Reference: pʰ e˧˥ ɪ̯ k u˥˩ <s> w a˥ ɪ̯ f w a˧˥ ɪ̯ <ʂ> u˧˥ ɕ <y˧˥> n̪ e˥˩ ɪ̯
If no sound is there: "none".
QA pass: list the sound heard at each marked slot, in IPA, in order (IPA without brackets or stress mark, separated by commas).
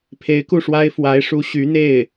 ʂ, ʂ, y˧˥